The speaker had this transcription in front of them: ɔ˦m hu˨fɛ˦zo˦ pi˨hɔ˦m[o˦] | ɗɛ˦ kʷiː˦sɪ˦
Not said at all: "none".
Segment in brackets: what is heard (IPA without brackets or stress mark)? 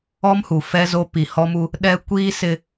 u˦